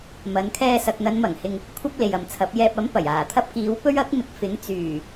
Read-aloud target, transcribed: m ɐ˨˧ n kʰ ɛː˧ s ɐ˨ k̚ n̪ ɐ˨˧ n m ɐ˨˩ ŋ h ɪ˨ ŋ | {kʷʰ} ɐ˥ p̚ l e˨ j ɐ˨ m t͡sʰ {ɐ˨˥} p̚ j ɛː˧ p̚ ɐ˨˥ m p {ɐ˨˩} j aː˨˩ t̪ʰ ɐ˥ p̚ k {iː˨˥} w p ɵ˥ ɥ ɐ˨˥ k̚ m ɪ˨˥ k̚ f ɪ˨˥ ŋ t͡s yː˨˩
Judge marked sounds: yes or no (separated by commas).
yes, yes, yes, yes